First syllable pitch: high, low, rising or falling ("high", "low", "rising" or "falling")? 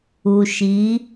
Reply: low